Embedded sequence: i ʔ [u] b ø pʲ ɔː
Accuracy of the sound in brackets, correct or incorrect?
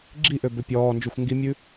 incorrect: ø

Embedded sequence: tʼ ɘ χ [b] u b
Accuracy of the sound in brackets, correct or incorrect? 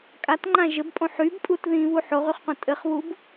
incorrect: β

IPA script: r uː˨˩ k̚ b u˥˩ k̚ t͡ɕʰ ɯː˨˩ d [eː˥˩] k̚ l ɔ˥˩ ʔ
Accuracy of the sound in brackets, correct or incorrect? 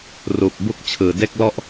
incorrect: e˥˩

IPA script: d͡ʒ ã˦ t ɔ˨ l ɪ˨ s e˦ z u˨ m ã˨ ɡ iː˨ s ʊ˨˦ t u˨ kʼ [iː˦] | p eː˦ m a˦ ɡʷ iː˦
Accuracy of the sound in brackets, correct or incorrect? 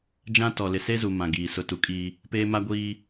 correct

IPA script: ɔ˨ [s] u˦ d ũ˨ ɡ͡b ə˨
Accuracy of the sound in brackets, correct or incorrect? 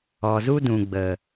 incorrect: z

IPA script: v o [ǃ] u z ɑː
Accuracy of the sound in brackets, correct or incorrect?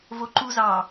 correct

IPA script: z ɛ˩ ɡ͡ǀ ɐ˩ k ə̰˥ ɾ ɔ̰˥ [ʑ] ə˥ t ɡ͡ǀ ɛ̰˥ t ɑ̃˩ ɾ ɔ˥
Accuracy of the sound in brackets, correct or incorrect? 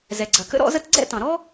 incorrect: z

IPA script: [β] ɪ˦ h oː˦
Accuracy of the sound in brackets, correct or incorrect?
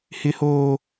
incorrect: h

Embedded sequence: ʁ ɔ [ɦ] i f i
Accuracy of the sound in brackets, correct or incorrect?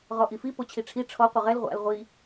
incorrect: ʔ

